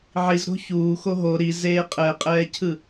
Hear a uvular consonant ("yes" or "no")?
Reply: yes